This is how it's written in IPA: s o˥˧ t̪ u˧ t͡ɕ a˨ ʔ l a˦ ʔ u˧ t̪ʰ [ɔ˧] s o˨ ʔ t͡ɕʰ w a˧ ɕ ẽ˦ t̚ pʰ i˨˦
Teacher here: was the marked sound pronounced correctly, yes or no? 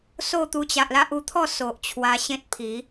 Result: no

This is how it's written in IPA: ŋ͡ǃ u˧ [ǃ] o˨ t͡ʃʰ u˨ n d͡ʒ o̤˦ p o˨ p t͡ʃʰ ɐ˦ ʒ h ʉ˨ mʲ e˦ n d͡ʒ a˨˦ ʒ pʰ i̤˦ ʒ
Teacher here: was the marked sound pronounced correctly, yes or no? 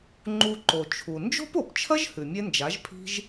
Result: yes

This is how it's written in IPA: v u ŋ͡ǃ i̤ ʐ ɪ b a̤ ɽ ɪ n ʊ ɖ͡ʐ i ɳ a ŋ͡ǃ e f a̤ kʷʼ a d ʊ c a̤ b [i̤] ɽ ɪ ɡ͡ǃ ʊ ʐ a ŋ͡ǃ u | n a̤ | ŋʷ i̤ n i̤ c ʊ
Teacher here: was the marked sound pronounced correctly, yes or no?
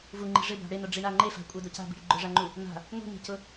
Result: yes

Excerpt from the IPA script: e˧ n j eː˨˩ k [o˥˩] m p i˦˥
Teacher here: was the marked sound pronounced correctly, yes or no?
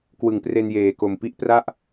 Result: no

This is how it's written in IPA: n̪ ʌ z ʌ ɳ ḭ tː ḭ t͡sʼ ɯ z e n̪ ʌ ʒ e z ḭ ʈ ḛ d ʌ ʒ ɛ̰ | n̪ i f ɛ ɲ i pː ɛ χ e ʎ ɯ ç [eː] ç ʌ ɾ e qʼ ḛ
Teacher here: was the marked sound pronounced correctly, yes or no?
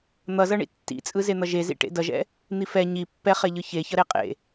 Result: no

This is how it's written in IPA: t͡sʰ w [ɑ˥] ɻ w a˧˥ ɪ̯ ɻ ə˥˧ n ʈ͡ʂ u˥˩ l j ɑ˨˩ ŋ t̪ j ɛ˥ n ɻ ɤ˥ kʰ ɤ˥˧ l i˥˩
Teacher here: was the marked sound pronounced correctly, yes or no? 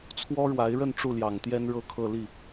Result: no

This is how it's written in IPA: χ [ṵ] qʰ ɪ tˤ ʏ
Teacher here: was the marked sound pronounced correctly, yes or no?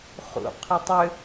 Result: yes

